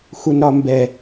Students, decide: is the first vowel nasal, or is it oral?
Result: oral